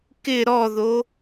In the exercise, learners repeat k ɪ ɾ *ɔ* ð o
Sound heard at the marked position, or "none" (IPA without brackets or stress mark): ɔ